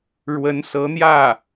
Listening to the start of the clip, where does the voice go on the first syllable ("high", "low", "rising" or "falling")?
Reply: rising